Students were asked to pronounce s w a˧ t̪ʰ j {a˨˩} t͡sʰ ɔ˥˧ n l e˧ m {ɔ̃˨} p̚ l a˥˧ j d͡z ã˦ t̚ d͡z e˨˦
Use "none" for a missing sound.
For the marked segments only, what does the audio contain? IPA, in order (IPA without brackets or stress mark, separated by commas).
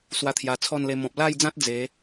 a˨˩, ɔ̃˨